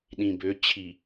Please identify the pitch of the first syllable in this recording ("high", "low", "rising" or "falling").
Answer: low